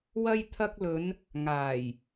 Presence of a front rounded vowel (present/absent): absent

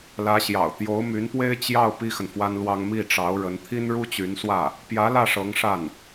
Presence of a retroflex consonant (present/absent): present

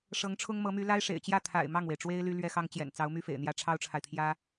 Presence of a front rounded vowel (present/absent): present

